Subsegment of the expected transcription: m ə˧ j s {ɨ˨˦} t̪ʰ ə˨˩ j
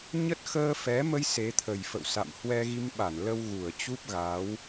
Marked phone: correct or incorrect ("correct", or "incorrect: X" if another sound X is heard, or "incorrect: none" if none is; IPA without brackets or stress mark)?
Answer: incorrect: e˨˦